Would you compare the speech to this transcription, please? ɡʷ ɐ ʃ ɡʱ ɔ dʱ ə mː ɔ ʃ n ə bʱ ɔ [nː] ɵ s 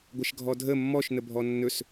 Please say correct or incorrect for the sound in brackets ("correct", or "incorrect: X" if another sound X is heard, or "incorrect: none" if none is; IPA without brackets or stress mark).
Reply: correct